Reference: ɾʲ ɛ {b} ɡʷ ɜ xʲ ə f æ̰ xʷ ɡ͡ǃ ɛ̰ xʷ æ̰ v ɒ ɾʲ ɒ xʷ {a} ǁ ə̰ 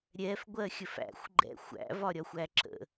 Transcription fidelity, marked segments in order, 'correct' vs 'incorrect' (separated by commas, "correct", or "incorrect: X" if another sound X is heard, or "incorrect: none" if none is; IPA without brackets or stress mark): incorrect: f, incorrect: æ